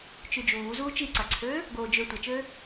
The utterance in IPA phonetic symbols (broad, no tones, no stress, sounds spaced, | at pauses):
t͡ʃ y d͡ʒ uː z uː t͡ʃ i ǀ a ǀʰ øː | ɡ oː d͡ʒ ø tʷ a t͡ʃ øː